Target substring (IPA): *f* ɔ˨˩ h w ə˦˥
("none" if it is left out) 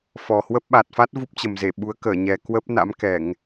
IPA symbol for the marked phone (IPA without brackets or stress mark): f